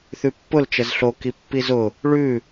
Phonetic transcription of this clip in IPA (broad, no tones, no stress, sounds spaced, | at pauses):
θ ʉ pː ʊ l t͡ʃ ə z ɬ o k i pː i z ʊ | ɭ ʉ